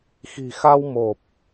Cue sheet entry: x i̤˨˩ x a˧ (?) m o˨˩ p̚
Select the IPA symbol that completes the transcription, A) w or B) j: A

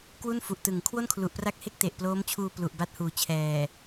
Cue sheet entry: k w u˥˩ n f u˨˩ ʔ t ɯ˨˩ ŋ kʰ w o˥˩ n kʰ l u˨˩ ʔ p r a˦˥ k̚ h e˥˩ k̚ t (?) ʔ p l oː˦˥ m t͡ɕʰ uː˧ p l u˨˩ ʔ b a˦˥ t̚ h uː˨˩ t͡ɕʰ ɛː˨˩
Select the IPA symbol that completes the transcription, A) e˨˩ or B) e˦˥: A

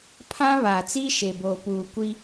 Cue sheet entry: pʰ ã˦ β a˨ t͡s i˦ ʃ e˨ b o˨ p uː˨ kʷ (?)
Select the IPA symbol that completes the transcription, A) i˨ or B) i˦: B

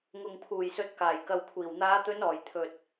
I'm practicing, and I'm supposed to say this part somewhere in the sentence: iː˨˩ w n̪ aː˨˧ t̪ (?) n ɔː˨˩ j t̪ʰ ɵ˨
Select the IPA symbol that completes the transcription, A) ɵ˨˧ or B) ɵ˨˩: A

